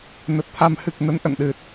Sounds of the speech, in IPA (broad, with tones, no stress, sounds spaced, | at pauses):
n ə˨˩ t̚ t̪ʰ a˧ m h ɨ˨˩ k̚ n ə˧ n ʔ ə̰˧˨ n ɗ ɨ˨˩ t̚